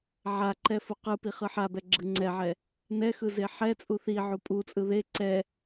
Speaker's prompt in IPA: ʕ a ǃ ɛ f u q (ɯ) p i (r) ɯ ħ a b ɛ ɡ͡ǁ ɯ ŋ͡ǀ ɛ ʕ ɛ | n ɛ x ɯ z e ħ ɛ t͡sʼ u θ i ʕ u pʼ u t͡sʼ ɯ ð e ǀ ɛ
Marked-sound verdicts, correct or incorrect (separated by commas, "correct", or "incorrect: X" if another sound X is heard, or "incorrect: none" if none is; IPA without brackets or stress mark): correct, incorrect: χ